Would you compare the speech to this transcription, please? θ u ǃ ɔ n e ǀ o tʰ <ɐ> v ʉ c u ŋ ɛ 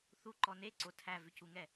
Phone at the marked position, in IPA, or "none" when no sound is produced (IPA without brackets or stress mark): æ